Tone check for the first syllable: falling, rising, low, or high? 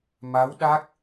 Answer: rising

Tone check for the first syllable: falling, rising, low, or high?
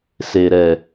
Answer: low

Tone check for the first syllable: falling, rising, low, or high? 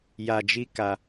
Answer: low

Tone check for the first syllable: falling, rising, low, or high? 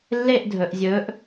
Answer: falling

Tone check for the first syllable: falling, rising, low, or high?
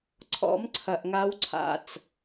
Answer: rising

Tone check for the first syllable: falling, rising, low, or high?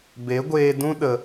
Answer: rising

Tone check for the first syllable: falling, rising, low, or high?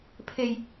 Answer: low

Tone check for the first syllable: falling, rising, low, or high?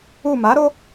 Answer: falling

